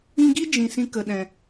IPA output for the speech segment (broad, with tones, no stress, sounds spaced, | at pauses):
ĩ˧ ɡ i˦ d͡ʒ ĩ˧ s ĩ˦ k ə˨ ɗ ɛ̃˨